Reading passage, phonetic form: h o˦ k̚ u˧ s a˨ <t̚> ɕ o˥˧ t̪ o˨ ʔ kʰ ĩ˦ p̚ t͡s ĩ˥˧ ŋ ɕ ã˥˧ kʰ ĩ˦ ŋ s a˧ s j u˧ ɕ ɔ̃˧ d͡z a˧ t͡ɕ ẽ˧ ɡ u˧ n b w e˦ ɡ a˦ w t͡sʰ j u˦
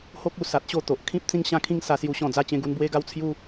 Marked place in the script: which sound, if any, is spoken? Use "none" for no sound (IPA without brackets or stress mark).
t̚